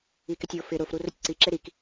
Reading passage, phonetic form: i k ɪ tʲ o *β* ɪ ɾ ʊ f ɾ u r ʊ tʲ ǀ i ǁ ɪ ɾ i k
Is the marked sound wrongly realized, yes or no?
yes